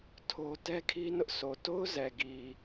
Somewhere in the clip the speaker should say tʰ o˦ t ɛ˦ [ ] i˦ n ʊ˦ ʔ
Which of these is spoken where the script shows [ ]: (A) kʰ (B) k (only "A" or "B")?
A